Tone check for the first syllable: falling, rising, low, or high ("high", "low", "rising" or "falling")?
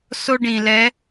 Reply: high